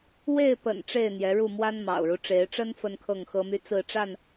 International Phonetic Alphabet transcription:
w e˥˨ ɪ̯ p ə̰˨˩ n ʈ͡ʂ e˥˨ ɪ̯ n̪ j ɛ˨˦ ɻ u˥˨ m w a˦ n m ɑ̰˨˩ ʊ̯ ɻ u˦ ʈ͡ʂ e˨˦ ɪ̯ ʈ͡ʂ ə˦ n f ə˦ n kʰ ɤ˥˨ ŋ x ɤ˦ m y˦ t͡s ɹ̩˥˨ ʈ͡ʂ a˥˨ n

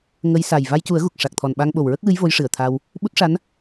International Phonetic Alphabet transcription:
ŋ ə˧˥ j s a˨˩ j v a˧ j c u˨˩˦ ə̯ ɣ u˨˩ k̚ ʂ a˨˩ k̚ t̪ʰ ɔ˨˩ n ɓ a˧ ŋ ɓ o˨˩ w ɹ ə˦˥ k̚ w ɨ˧˥ j v o˧˥ j ʂ ɨ˨˩ ə̯ t̪ʰ a˧ w | ɓ u˦˥ t̚ ʂ a˧˥ n

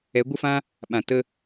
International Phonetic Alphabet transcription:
ɛ˨˦ ɡʷ ə˦ f ã˦ | ɓ ã˨ t ə˦

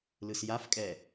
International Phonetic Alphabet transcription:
l ɯ s j a f kʼ ɛ

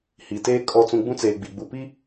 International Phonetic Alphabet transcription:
h i˨ t eː˦ kʼ ɔ˦ t͡s ũ˦ ɡ͡b ũ˦ t͡s eː˨ ɡ͡b i˨ ɡ͡b u˨ p i˦

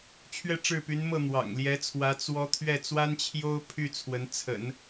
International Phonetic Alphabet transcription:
t͡ɕʰ ɥ ɛ˥˧ ʈ͡ʂ ɻ̩˥˩ p y˧˥ n m ɤ˥˩ n̪ w ɑ̰˨˩ ŋ l j ɛ˧˥ t͡sʰ w ä˧˥ t͡s w ɔ˥ t̪ʰ ɥ ɛ˥˩ t͡s w a˥ n t͡ɕʰ j o˥ ʊ̯ pʰ y˥˩ t͡sʰ w ə˧˥ n t͡sʰ ə̰˨˩˦ n

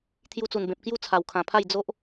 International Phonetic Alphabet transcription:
t̪ʰ j u˧ t͡s u˨˩ n b ẽ˨ p̚ k j u˥˧ t͡sʰ a˨˩ w kʰ ã˨˩ pʰ a˥˧ j d͡z o˦ ʔ

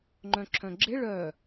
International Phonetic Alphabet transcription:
ŋ͡ǃ œ̃ ǁʰ œ̃ ɡ͡ǁ ɪ ɭ œ

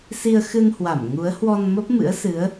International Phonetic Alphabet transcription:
s i˧ ə̯ x ɨ˧ n h w a˧˩ m ŋ u˨˦ ə̯ h w ɔ˧ n m ə˦˥ p̚ m ɨ̰˧˥ ə̯ s ɨ˨˦ ə̯

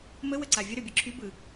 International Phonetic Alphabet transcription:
m ə w ə ǀ a vʲ ə ɾ ø bʲ ɯ ǁʰ y b ɯ

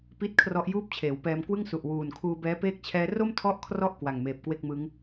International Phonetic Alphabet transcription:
p i˦˥ t̚ kʰ r ɔ˦˥ ʔ j uː˥˩ p̚ t͡ɕʰ eː˩˦ w p ɛː˧ m k w ɯ˥˩ ŋ s u˨˩ ʔ w uː˨˩ n kʰ uː˧ b ɛː˦˥ p eː˥˩ k̚ t͡ɕʰ ɛː˦˥ r o˥˩ m tʰ ɔ˦˥ ʔ kʰ r ɔ˦˥ ʔ k w a˨˩ ŋ m eː˨˩ p̚ k w e˥˩ k̚ m ɯ˦˥ ŋ

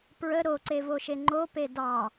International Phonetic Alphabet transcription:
p ɹ ə ɾ o ǀ e v o ʃ e ŋ͡ǃ o p e d ɑ

